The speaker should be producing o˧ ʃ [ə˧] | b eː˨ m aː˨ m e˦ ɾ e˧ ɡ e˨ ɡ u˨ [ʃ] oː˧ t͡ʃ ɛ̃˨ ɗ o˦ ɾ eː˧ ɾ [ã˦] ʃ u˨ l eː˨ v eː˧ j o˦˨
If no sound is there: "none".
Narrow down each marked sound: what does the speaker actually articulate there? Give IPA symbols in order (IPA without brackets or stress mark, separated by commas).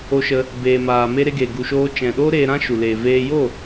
ə˧, ʃ, ã˦